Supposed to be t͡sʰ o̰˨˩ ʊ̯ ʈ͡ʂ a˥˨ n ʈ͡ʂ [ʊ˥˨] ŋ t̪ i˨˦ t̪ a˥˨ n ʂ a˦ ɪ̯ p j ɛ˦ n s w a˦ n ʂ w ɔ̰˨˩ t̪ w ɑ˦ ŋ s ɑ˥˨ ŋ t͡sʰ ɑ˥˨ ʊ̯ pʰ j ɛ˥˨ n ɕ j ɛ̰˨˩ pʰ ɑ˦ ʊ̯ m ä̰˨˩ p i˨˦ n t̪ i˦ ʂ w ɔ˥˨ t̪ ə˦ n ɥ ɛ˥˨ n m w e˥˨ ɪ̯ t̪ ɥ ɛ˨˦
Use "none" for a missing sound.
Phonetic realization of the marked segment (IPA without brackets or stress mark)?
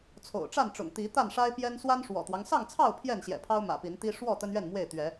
ʊ̰˨˩